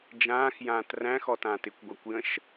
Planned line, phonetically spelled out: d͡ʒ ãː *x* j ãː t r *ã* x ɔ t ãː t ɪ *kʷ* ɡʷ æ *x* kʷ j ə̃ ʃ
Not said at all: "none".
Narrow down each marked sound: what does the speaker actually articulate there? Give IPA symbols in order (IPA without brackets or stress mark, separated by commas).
x, æ̃, kʷ, none